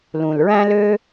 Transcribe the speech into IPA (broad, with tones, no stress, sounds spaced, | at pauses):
l ũ˩ l ɹ æ̃˥ l ø˥